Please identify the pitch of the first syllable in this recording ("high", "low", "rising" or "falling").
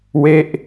falling